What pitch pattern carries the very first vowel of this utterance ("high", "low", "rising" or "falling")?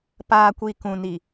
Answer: low